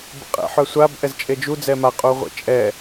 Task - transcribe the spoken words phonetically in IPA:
b ə̰ qʼ ɛ̰ ħ œ sʷ a b ʔ ɛ z t͡ʃʼ e d͡ʒ u d͡z ɛ m a qʼ u ʁʷ ḛ t͡ʃʼ ɛ

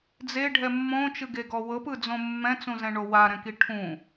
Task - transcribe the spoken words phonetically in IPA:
d͡z e ɖʱ ɛ mː õ t͡ʃ ɯ ɡ e ɡ ɔ w ɤ p ɯ d͡z õ mː ɛ̃ t͡s ũ z ɛ̃ ɳ o w a ɾ ɛ̃ k i ʈʰ ũ

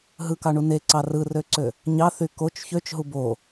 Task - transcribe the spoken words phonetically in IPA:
ɦ ɯ k ɑ ɳ u n e ǀ ɑ r ɯ r ø ǀ ø | ɲ ɑ θ y k o t͡ʃ ç ø t͡ʃ ɦ u b o

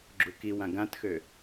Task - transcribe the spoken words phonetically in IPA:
ɡ͡ǁ u k i w ã ɡ ã t x ø

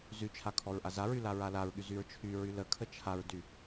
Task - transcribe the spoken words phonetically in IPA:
z y t͡ʃʰ a kʰ ɔ ɹ ʔ a z a ɹ y l a ɹ a l a ɹ ɠ y z y ɹ t͡ʃʰ y ɹ y l ə kʰ ə t͡ʃʰ a ɹ d y

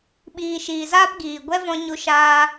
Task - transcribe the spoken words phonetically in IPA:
ɓ iː˨ ʃ iː˨ z aː˦ p ɡ iː˨ ɡʷ ɛ˦ v ɔ̃˧ ɲ u˧ ʃ aː˧

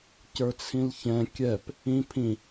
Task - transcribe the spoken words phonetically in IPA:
c ə˞ t͡sʰ ĩ l ç ɛ̃ kʲ ɛ p | ĩ pʰ ĩ

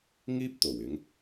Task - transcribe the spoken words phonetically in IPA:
ŋ iː˥ p̚ t̪ o˨˩ w ɪ˨˧ ŋ

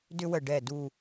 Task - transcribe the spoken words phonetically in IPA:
d ʏ˧ w ə˨˩ ɖ ɛ˨˩ d u˨˩

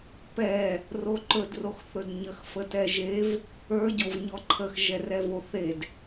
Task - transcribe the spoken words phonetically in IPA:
p ɛ | r o ǃ ɵ d r o x θ ɵ d ɲ ə x f ə t ɛ ʒ e v | ə˞ ɟ o v ɲ ɔ ǃʰ ə x ʒ ɛ r ɛ v o θ e d

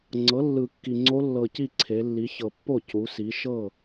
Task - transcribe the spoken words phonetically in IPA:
ŋ͡ǀ ɤ˩˥ lː ɯ˨˩ kː i˨˩ ŋ͡ǀ o˧˥ lː ɤ˨˩ c i˥˩ ǀʰ e˩˧ lː i˩˧ ç ɤ˨˩ pː o˥˩ c u˩˧ s i˩˧ ʃ ɤ˥˩

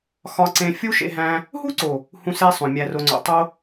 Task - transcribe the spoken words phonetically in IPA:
x ɒ˧ ǀ ẽ˧ fʲ u˦ ʃ ḛ˧ ɦ æ̃˧ | ɦ u˦ ǀ o˨ | h ũ˧ s e˧ sˤ õ˨ mʲ æ˨ r o˨ ŋ͡ǀ o̰˨ tˤ o˧

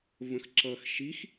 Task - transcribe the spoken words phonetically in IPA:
v ə̃ x ǁ ʌ x ʃ i x

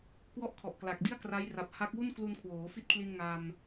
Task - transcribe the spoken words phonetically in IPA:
k w ɔ˥˩ ʔ kʰ ɔ˨˩ ʔ k l a˨˩ k̚ d i˥˩ a̯ k r a˦˥ j r a˨˩ p̚ h a˦˥ k̚ w u˥˩ n k l u˧ n kʰ w oː˩˦ f i˦˥ t̚ kʰ l i˧ n ŋ a˧ m

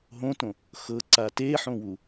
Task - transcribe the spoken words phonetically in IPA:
ɦ õ t õ | x ɤ ǀ a t e ħ õ w u

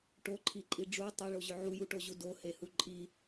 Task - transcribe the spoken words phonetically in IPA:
ʈ o ǃʰ i ǃʼ i ɖ͡ʐ u tˤ e ɭ o ʑ ʏ ʕ u j u ʈ o ʑ u d o h e h u ǃʼ i

